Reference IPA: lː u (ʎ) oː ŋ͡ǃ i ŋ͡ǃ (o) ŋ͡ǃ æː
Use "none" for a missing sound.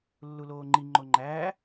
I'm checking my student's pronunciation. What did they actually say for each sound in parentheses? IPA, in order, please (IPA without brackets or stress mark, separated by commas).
l, o